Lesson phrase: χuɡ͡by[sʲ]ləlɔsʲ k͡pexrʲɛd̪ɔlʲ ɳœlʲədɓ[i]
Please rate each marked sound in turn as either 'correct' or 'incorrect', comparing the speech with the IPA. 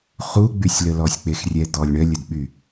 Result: correct, incorrect: y

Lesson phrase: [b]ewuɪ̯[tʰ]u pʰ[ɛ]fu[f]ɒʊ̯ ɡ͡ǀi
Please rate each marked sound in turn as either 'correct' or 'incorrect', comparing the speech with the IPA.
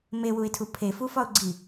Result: incorrect: m, correct, incorrect: e, correct

